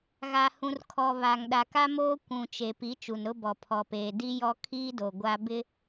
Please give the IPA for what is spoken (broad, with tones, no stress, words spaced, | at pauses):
ɣa˨hũ˨rkʰɔ˨ βa˨ŋɗa˨ka˦moː˦ kʷũ˨ t͡ʃe˨pi˨˦ t͡ʃu˨nɾʊ˦bɔ˨ pʰɔ˨peː˨ di˦jɔ˦ kʰiː˦do˨ ɡʷa˦ bɪ˦